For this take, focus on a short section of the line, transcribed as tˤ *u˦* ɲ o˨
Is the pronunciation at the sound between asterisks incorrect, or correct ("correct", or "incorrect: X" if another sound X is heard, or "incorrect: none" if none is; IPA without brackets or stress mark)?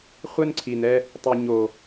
incorrect: u˨